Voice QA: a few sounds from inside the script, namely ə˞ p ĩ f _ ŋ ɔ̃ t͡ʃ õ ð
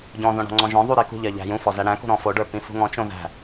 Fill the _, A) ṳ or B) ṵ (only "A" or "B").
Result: A